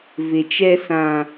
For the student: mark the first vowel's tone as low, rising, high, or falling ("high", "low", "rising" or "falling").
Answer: low